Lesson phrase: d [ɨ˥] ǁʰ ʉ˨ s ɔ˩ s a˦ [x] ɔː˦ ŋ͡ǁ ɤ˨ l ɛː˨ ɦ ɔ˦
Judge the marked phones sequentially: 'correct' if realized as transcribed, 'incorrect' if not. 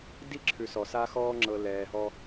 incorrect, correct

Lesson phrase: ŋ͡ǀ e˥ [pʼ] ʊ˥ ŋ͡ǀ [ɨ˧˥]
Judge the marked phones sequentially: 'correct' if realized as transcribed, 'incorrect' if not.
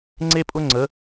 correct, incorrect

